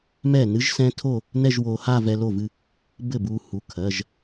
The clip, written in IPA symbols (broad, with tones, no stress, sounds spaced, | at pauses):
m ɛ˥˩ n ɨ˦˥ ʒ s ɛ̃˦˥ tʰ o˥˧ | n ɛ˥˧ ʒ w o˧ h a˥˧ v ɛ˧ l o˥˩ v ɨ˥˧ | b ɘ˥˩ b u˧ h u˩˧˩ kʰ ɜ˩˧˩ ʒ